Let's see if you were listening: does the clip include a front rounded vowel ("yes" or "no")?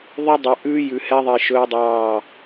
no